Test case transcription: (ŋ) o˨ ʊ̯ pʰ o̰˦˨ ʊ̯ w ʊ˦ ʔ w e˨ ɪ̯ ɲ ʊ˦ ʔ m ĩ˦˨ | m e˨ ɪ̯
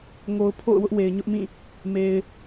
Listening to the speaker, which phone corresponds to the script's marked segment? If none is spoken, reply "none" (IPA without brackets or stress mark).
ŋ